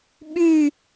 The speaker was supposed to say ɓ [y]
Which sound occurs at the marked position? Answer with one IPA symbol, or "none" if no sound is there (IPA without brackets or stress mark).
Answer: y